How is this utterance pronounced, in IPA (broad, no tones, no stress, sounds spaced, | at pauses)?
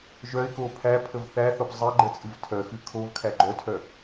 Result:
ʒ œ ɪ̯ k o pʰ æ pʰ ə v θ æ θ o p zˤ e ɡ͡ǃ ə t͡sʼ ɨ v tʰ œ x ɨ kʰ o v kʰ æ ɡ͡ǃ œ tʰ œ